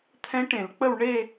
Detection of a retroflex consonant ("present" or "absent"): present